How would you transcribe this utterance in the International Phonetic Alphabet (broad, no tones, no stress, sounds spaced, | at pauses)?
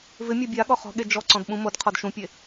v ɪ mʲ a bʲ a ɠ ɔ χ ɔ̤ ɠ e d͡ʒ ɔ ǀ ɔ̃ d ɓ ũ m o d qʰ ɔ d ʃ ũ pʲ e